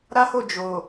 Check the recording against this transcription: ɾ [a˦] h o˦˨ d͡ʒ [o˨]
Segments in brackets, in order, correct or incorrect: correct, correct

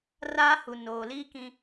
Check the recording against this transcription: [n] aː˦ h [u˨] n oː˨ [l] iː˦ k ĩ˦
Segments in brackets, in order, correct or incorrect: incorrect, correct, correct

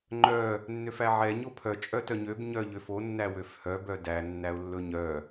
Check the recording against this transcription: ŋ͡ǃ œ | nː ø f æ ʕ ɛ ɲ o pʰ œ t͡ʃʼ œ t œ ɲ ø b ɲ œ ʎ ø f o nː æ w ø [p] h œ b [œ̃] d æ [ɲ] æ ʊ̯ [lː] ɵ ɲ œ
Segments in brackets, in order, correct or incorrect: incorrect, incorrect, incorrect, correct

